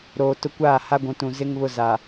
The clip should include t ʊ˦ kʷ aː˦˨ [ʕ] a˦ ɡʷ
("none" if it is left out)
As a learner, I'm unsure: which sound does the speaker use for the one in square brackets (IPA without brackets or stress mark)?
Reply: h